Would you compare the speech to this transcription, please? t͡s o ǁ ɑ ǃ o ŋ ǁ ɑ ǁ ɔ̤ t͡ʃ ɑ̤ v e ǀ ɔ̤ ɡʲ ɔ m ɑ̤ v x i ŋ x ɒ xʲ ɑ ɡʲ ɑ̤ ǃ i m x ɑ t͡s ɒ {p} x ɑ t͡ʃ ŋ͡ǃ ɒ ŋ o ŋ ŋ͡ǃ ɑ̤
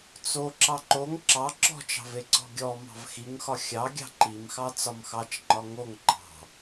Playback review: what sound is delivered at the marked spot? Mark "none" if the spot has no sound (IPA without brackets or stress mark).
m